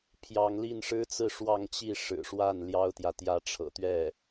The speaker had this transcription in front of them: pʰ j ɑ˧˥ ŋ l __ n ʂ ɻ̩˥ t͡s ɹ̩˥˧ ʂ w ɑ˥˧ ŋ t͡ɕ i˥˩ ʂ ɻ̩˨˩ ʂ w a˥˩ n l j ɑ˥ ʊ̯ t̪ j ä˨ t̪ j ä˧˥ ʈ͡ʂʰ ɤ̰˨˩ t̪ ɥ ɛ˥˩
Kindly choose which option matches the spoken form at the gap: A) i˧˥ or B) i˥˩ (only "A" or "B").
B